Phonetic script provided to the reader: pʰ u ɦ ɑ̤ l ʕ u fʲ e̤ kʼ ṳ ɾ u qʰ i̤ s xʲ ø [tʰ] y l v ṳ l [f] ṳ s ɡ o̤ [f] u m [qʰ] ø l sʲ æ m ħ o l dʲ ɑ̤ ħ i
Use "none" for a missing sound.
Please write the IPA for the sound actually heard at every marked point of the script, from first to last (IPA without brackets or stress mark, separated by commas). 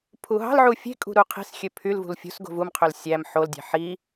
pʰ, fʲ, v, qʰ